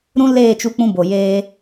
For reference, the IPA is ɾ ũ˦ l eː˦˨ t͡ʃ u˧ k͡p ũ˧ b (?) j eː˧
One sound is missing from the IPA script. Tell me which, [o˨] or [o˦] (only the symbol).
o˨